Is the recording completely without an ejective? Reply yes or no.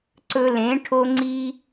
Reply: yes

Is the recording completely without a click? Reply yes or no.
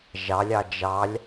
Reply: yes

